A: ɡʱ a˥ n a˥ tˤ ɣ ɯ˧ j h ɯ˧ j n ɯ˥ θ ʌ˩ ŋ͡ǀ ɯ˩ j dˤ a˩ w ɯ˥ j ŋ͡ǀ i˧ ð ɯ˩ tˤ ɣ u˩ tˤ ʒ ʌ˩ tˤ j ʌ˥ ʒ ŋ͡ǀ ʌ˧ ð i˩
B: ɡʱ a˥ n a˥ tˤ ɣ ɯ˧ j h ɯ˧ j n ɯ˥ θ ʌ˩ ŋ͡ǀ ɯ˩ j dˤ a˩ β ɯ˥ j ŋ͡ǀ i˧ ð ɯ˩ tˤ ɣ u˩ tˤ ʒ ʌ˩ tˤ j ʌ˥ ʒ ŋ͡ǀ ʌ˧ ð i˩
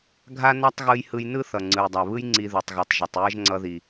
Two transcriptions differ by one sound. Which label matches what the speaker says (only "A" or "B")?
B